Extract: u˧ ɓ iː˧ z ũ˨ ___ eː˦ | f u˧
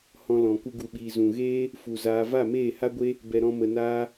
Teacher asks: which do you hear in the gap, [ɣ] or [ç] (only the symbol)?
ɣ